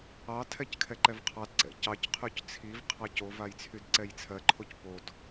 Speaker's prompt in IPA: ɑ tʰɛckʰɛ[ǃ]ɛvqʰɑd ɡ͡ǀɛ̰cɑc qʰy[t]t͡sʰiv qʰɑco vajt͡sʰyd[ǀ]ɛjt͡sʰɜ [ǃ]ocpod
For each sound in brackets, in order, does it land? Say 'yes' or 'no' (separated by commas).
yes, no, yes, no